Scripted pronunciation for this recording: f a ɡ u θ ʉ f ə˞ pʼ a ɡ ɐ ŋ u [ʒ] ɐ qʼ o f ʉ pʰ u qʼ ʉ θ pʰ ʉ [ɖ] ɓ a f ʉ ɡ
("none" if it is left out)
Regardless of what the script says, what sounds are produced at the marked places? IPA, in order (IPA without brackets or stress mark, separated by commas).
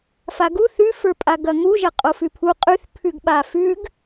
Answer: ʒ, ɡ